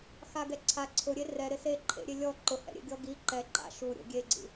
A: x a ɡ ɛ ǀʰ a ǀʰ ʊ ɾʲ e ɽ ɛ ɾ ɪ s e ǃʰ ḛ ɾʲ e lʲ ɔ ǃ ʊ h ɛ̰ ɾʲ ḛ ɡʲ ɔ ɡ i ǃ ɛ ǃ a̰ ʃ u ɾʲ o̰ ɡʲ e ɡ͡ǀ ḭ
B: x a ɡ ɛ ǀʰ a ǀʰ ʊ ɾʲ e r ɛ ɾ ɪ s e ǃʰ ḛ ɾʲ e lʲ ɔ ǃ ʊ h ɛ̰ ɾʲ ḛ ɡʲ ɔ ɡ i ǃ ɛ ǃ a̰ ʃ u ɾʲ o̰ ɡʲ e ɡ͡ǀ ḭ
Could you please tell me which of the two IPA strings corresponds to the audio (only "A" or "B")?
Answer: B